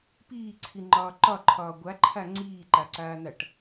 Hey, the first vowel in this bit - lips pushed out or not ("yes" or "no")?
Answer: no